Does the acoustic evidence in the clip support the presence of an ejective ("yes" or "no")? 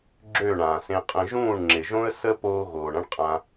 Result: yes